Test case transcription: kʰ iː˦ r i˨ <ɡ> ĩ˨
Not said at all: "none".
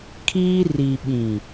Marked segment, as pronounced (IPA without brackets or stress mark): ɓ